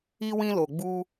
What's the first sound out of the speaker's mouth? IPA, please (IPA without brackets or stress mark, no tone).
i